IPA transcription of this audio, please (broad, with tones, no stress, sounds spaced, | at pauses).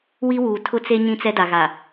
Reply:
w i˦ w uː˨ tʰ ʊ˦ t͡s e˦ ɲ ĩ˦ t͡s ɛ˦ d a˨ ɣ a˨